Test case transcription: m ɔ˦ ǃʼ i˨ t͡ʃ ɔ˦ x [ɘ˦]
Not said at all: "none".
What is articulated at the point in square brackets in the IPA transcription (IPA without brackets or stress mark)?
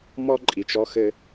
ɘ˦